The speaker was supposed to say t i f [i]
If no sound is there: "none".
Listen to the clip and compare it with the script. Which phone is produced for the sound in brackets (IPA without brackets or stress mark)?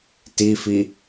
i